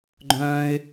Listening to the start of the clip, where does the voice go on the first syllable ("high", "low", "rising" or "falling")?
high